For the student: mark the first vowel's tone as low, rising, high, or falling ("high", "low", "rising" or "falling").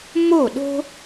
falling